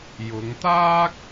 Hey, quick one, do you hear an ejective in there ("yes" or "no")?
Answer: no